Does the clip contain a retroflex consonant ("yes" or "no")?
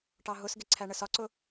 yes